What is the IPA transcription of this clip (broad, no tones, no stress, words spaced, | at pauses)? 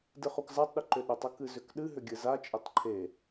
dɨχukzatˤɗʏ ǃʏɗʏtˤʊ kɨzʏkɗɨɦʏ ɡʲɨzat͡ʃʼʏtˤ ǃʰe